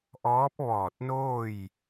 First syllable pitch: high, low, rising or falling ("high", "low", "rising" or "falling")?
rising